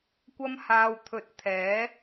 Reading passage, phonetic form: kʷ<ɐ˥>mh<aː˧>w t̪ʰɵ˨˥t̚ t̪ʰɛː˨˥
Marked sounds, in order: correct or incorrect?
correct, correct

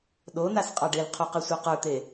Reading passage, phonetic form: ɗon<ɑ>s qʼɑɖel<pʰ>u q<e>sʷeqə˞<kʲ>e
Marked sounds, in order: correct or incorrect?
incorrect: a, incorrect: qʰ, incorrect: ɛ, incorrect: t̪

